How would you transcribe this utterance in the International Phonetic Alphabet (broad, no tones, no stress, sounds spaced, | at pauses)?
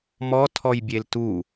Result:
m ɔ tʰ ɔ j bʲ e l t u